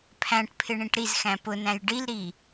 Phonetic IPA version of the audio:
pʰ æ̃ ʈ pʰ ɪ ɳ ĩ ʈ ɾ i z x æ̃ p ʊ n æ̃ j ɖ i l ɾ i

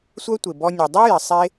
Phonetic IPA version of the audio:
sʷ œ˦ tʷ ɪ˨ b ɔ˧ nʲ o˨ dˤ i˦ j ɪ˨ sˤ e˦

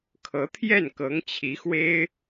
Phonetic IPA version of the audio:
kʰ ɤ˧˥ t̪ʰ j ɛ˥˩ n k ɤ˧˥ ŋ t͡ɕʰ i˧˥ x w e˥ ɪ̯

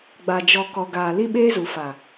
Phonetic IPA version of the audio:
ɡ͡b a˨ d͡ʒ ɔ˨ k ɔ˨ ɡ aː˨ l i˦ ɓ eː˦ z u˨ f a˨

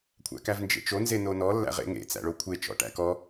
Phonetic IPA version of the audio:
kʷʰ æ̰ k æ v n d͡ʒ ḛ t͡ʃ o n z e n o n ɔ lː æ̰ ʁ ḛ ŋ ḛ t͡s æ̰ ɭ o kʷʰ e t͡ʃ ɔ̰ ʈ æ̰ k ɔ

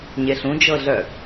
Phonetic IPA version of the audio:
ɲ e ɬ ũ d͡ʒ ɤ ɮ œ

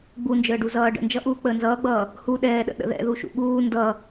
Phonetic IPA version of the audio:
ɡ͡b u n d͡ʒ əː ɖ u z ʌː ɖ ə̰ n d͡ʒ ʌ ʔ uː k͡p əː n z ʌː ɡ͡b ʌː | h u ɗ ɛː ɗ ə̰ ɗ ə̰ ð ɛ̰ ð u ʃ ṵ ɠ uː n d ʌ

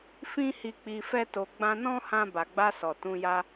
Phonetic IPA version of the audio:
f ĩ˦ h i˧ k͡p i˧ f ɛ˦ t o˧ ɡ͡b ã˦ n ɔ̃˦ h ã˧ b a˨ ɡ͡b a˧ s ɔ˨ t ũ˧ j a˦

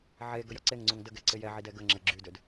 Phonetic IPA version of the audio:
ʕ e ɡ ə j ɒ ǀ e ŋ ŋ͡ǀ u ŋ d ə ɡ ɛ ǀ ɪ j ɛ ʕ i d ɛ ɡ ə ŋ͡ǁ ə ɡ͡ǁ y d ø d

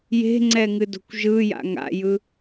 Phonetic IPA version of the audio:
j e̤ ŋ͡ǀ ɛ ŋ ɨ d o̤ kʷ ʒ ɯ j a̰ ŋ a̰ j ɯ

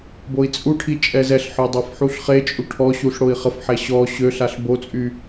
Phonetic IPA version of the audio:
b o i̯ t͡sʼ u ʈʰ i t͡ʃʼ ɛ z ɛ ɬ ħ œ dˤ a f ħ u ɬ χ e t͡ʃʼ u ʈʰ ɔ ɕ u ɬ ɽ o i̯ χ ə f ħ ɛ ɕ ɔ ɕ ø ɬ a ɬ b o t͡sʼ y

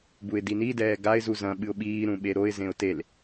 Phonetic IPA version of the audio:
b u ɪ̯ d i n i d ɛː ɡ a ɪ̯ z u z ɐ̃ ɓ ɨ ʊ̯ ɓ iː ɾ ũ ɓ e ɾ o ɪ̯ z ẽ ʊ̯ t e l

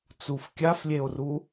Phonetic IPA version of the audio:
t͡s u f kʲ a f lʲ e o̯ r u

